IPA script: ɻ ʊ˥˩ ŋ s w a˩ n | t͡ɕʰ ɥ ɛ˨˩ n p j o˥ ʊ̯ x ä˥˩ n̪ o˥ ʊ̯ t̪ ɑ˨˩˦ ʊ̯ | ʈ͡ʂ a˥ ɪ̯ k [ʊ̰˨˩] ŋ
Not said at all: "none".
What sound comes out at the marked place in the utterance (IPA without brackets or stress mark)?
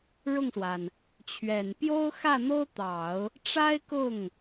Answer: ʊ˥˩